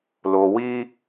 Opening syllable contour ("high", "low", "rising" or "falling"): low